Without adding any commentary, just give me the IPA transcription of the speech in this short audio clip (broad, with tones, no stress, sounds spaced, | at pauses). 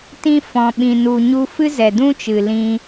t ĩ˧ f ɔ̃˨ ɓ ĩ˨ n u˨ ɲ u˧ f ɨ˦ z ɛ˨ d ũ˦ t͡ʃ ɨ˨ l ĩ˧